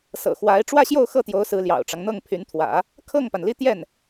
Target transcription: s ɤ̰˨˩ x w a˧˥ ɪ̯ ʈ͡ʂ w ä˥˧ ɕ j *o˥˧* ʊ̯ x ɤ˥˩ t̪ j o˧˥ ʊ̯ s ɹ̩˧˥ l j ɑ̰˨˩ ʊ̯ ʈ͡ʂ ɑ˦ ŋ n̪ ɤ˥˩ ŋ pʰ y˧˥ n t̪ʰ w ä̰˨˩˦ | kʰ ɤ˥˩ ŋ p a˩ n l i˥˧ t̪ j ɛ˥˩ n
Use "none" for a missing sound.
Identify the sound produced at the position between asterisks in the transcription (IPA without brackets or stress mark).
o˥˧